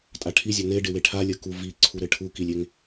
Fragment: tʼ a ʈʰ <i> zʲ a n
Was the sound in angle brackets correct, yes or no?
yes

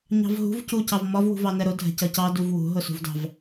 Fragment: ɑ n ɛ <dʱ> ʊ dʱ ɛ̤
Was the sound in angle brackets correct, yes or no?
no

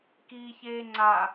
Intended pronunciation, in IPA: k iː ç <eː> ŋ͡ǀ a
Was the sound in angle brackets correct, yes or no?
yes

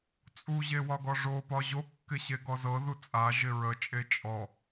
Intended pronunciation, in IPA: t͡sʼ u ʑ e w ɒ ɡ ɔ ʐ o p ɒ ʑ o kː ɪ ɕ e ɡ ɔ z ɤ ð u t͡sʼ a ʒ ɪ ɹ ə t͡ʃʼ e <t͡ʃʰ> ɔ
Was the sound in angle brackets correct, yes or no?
no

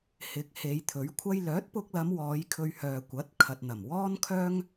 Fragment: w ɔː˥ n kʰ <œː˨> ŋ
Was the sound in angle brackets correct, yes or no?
no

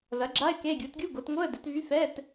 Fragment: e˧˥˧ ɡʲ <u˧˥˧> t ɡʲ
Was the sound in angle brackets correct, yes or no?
no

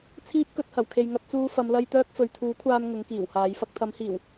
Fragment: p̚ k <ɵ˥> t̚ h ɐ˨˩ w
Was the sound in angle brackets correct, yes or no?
no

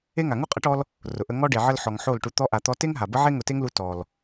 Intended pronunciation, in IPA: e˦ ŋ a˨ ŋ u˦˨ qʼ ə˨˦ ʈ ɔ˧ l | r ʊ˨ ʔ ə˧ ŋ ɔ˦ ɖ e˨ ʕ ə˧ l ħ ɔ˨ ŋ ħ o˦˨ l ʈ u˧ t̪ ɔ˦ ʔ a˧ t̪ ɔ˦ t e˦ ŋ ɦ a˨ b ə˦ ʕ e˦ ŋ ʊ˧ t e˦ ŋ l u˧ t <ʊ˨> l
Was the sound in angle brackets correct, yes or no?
no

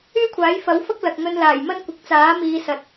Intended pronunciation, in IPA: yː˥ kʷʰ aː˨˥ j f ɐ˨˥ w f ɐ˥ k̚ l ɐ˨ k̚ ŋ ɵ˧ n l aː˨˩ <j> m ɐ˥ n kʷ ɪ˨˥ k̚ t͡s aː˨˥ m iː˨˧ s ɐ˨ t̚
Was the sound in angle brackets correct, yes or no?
yes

